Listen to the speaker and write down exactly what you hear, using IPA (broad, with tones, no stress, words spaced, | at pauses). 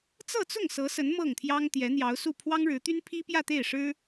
t͡sɤ˥˧t͡sʊ˥˩ŋ sɤ˧˥sə˧˥n mɤ˥˩ŋt̪ʰjɑ˥ŋ t̪jɛ˧˥n̪jɑ˧˥ʊ̯su˥˩ pʰwɑ˥ŋɻɻ̩˧˥t̪y˥n pʰi˥pjä˥˧t̪e˥˩ɪ̯ʂɻ̩˥